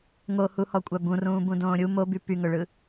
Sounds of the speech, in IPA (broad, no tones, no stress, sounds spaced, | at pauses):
ŋ o h u h ɔ kʷʼ a b ũ r ũː b ũ d õː ɾʲ u m o b y p y ŋ ɵ ɭ ɯ